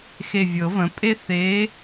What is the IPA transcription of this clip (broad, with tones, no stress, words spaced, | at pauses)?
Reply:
xe˧˩vʲɤ˨˩˦və̃˩˥ pʼe˥ θe˧˥